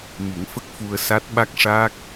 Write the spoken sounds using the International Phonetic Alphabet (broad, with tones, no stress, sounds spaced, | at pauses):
m i˨˩˦ ŋ f ə˦˥ k̚ f u˧ ə̯ s a˦˥ t̚ ɓ a˦˥ k̚ ʂ aː˦˥ k̚